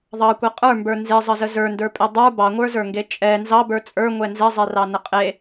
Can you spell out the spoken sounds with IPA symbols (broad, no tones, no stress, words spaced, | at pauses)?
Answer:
ðˤɑkʷɛ qʼə˞mbə˞ nzezˤəzə zə˞ndə˞pʼe dˤə˞ bɑŋʷə˞zə˞ŋɡe t͡ʃʼɛ nzɑbə˞ t͡sʼə˞ŋʷɛ nzɛzˤɛrɑnə qʼe